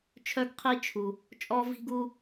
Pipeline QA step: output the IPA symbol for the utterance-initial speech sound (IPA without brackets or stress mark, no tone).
t͡ʃʰ